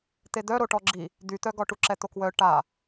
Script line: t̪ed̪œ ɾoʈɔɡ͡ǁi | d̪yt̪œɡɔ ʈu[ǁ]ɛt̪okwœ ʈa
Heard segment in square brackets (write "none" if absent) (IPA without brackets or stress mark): ǁ